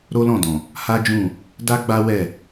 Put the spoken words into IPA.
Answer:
ɾo˦lɔ̃˦˨dɔ̃˨ | ha˦d͡ʒũ˦˨ | da˦ɡ͡ba˦wɛ˦˨

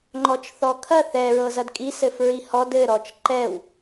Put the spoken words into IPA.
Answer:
ŋ͡ǃɔt͡ʃθɔkʰɐ θɛ ɹɤzɐdkʼi sɘfɹihɔd ɘ ɾɔt͡ʃǃɛw

